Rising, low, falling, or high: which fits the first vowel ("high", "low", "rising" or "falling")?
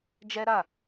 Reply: high